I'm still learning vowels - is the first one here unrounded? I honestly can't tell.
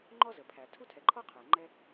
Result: no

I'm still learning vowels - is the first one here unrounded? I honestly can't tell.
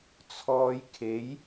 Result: no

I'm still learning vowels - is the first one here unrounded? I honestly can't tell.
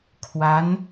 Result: yes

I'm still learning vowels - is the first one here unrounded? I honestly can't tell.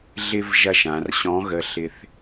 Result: yes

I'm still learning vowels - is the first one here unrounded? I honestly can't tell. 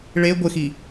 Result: yes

